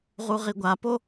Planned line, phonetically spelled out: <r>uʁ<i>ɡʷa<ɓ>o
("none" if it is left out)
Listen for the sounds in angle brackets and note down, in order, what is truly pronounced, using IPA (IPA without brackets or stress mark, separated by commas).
ʁ, i, p